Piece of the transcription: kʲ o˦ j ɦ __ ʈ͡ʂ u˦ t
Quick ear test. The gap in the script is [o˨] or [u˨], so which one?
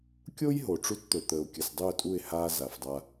o˨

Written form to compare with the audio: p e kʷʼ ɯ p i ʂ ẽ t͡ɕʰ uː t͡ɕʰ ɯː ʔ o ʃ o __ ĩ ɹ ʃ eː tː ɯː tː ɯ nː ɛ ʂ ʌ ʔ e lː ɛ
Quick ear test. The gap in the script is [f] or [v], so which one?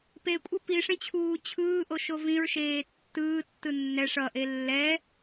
v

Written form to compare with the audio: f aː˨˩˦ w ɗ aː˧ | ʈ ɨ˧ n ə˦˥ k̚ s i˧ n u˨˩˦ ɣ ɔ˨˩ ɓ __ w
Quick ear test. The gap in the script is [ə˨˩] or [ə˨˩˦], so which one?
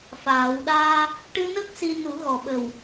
ə˨˩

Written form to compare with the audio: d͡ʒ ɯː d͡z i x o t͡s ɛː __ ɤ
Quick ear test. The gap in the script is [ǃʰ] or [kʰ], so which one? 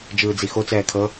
kʰ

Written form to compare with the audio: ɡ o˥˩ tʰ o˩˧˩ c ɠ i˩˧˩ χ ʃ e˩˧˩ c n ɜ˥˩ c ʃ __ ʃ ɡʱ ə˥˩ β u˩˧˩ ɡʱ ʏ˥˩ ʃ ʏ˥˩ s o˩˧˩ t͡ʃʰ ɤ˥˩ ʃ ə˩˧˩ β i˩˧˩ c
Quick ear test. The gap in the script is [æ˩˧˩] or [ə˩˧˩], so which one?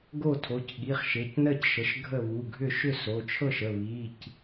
ə˩˧˩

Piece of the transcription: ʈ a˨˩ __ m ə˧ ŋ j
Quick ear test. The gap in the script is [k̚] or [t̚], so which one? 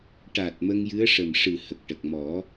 t̚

